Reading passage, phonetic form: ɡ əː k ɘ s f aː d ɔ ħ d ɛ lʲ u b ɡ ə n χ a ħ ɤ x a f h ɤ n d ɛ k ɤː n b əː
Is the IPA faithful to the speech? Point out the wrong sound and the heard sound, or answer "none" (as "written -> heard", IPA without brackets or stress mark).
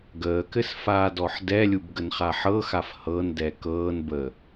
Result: none